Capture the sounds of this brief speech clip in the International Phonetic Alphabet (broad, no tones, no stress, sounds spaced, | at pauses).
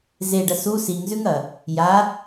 z e ɖ ɐ s u s i ŋ z ʉ ŋ ɐ | j a